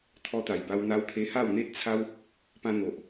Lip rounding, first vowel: rounded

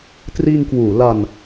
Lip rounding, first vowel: unrounded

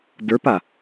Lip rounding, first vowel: unrounded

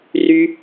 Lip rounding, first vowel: rounded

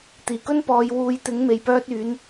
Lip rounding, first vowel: unrounded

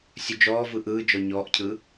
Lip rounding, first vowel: rounded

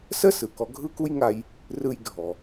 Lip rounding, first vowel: unrounded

